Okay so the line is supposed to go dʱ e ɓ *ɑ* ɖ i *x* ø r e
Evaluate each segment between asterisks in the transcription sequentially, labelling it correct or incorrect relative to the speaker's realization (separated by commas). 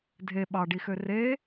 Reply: correct, correct